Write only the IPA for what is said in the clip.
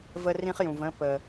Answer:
v ə˦ r ĩ˦ χ j ũ˨ v ə̃˦ p ə˨

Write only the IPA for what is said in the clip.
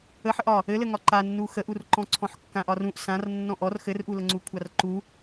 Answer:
ə ħ ə ʔ ɒ | ɘ l ɘ ŋ ɒ ǃ a nː u x ə ʔ u r ǃ ɔ̃ ǀʰ ɔ̃ ħ kː ã ʔ ɒ r ũ ʔ s ã r nː ɔ̃ ʔ ɔ r x ɘ r ʔ u l ə ŋ͡ǀ u kʷʰ a r ǃ u

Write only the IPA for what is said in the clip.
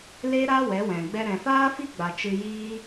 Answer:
l e˦ ɾ a˦ w ɛ˨˦ w ɛ̃˨ ɡ͡b ɛ˦ ɾ ɛ̃˨ f aː˦ f i˦ ɡ͡b a˨ t͡ʃ ɨ˧ j iː˦

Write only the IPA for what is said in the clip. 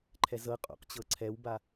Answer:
ǃʰ ɛ z ɤ qʼ o̰ q t͡ɕ ɤ ǀʰ ɛ w b a

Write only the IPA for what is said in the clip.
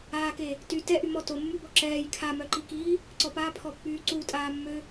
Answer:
aː k e | t y t ɛ ʔ y m ɔ t o mː y b ɔ ǁ ɛː j kʰ a m œ ǃ i k iː | ǀ ɔ p aː pʰ ɔ pː yː ǀ u tʼ aː mː ø

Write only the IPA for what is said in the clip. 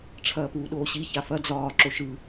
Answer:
ʈ͡ʂʰ ɐː p uː ɗ oː ɕ i ç a f ɐ d͡z ɒː ǁ o ʃ ɯ

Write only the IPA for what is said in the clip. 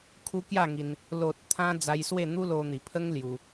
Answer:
kʰ u˧ k j a˥˧ ŋ i˧ n | l o˨ t̚ t̪ʰ ã˧ d͡z a˧ j s w e˥˧ n̪ u˦ l o˧ n̪ i˨˩ pʰ ə˦ ŋ l j u˧

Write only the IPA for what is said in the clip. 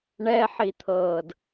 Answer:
ɳ ɛ ħ i t̪ʰ ɤː d

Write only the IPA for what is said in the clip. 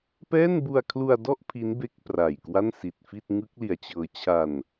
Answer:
p ɛː˥˩ n b u˧ a̯ kʰ l u˧ a̯ d ɔ˥˩ ʔ pʰ i˦˥ n b e˦˥ k̚ p r a˨˩ j k w a˥˩ n s i˨˩ t̚ f i˥˩ t̚ ŋ ɯ˦˥ k̚ l i˨˩ a̯ t͡ɕ ɤː˧ t͡ɕʰ a˧ n

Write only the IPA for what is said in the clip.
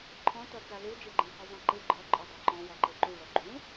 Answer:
ǃʰ ɔ̃ t ɔ t͡s a l u d͡ʒ e ɡ͡ǃ ẽ h ɯ zˤ ã ǃ ɯ ɡ͡ǃ ɒ ǃʼ ɒ dˤ e ǃ ɔ̃ w ɒ ǃ e ǃ u ɭ ɔ ɡ͡ǃ ũ

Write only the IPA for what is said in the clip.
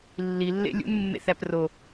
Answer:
lː i lː ḛ lʲ ṵ n mː ḛ θ æ p r o

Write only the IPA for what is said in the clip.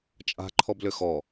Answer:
t͡ʃʼ a̤ ǃʰ ɔ b l ʏ x ɔ

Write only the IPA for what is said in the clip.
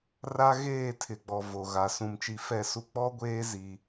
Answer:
r a˦ ɣ eː˦˨ tʰ ɪ˨ ɡ͡b ɔ˨ v o˨ ɣ a˨ s ũ˨ m t͡ʃ i˨˦ f ɛ˦˨ s u˦ k͡p ɔ˦ ɡʷ eː˦ z i˦

